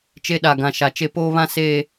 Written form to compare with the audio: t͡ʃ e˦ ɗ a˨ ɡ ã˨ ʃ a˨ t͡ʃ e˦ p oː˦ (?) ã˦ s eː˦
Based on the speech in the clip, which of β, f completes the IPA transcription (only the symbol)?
β